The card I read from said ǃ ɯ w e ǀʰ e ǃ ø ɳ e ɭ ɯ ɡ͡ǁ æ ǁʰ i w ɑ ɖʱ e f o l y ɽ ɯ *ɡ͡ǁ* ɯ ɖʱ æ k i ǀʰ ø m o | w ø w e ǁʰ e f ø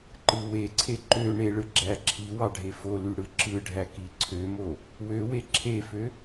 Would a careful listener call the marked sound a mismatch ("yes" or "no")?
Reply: yes